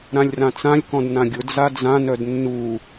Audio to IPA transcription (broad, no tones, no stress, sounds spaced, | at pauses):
ɾ ã lʲ r ã t͡s ã lʲ k ɔ̃ d n ã ɡʲ ʊ d͡z a d͡z ã n œ d nː u